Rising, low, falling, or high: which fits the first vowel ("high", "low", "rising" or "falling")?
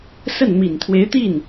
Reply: falling